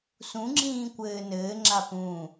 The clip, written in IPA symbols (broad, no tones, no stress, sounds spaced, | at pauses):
s ũ ŋ͡ǁ ĩː kʷ ɘː n ɘː ŋ͡ǁ a p ũ